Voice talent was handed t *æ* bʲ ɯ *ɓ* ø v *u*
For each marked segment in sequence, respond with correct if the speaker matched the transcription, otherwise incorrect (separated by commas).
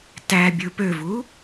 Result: correct, incorrect, correct